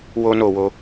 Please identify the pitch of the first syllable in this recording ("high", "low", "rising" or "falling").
high